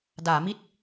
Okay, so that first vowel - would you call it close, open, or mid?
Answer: open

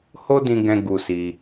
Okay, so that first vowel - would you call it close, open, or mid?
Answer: mid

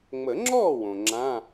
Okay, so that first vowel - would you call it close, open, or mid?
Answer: mid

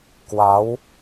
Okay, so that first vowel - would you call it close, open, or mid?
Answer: open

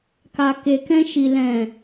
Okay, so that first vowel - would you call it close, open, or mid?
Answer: open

